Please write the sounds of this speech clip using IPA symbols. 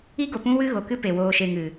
i˦ ɡ o˨ p ũ˦ w ɨ˦ ɣ o˨ k ɨ˦ p e˨ w oː˧ ʃ e˧ ŋ ɨ˨

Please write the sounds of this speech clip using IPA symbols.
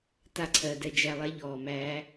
t a˧ ǀʰ ɜ˨ d ɛ˧ d͡ʒ æ˧ lˠ ɛ˦ ʎ ɔː˨ m æː˦

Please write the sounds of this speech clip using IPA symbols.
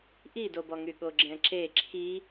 ʔ i d o b ɔ ŋ y ɠ o ɡ͡ǁ ɛ̃ ǁ e ǁʰ i

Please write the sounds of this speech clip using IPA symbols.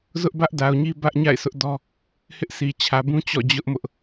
z ʊ˦ ʔ b ä˦ ʔ d a˨ ʊ̯ ɲ i˦ b ä˦ ʔ ɲ a̰˦˨ ɪ̯ sʰ ʊ˦ ʔ d ɔ˦ | h ɪ˦ ʔ sʰ i˨ t͡ɕʰ ä˨ b ũ˦ t͡ɕ ɔ̰˦˨ d͡ʑ ʊ˦ ʔ m ʊ˦ ʔ

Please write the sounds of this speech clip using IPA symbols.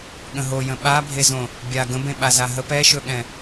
ɠ ə̃ ɦ o j ə̃ ɓ a bʱ e z õ | bʲ a ɡ ə̃ b ẽ ɓ a z a ɦ ə p ɛ ʃ ɵ ɠ ɛ̃

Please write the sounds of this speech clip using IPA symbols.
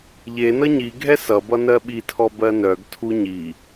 ʎ e n ʌ ɲ i ɡʱ ɛ s ʌ b ʌ n ɜ ɓ i tʰ ɔ b ɜ n œ ɡ tʰ u ɲ i

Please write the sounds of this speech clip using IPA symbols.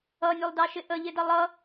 ʌ nʲ ʊ lˠ d ɑ ʃ ɪ ʔ ə ʎ ɪ d ʌ lˠ ʌ

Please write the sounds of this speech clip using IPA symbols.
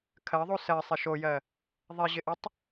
kʰ ɜ ðˤ u s ɜ sˤ ɪ ʃ o j ɜ | ðˤ e ʑ ɪ ʔ ɪ tˤ

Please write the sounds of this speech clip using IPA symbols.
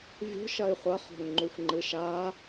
vʲ o̤ ʃ ɐ i̯ χʷ ɐ χ o̤ ŋ ŋ͡ǃ u xʷ ŋ͡ǃ ɨ ʃ a

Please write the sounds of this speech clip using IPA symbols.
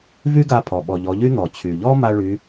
v y˥ ɡ a˧ pʰ ɔ˩ ɓ ɔ˩ ʎ ɔ˩˧ ʎ y˥ n̪ ɔ˩ t͡ɕʰ y˩ ʎ ɔ˥ m a˥ ɭ y˧˥

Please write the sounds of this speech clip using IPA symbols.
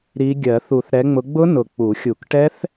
ɾ i˨˦ ɡʲ ɜ˨˩˦ θ u˨˩˦ θ ɾ ɛ˨˦ ŋ͡m ʊ˨˦ ɡ͡b ʊ˦˥ n ʊ˨˩ k͡p u˨˩˦ xʲ u˨˩˦ k ʈ ɛ˦˥ θ

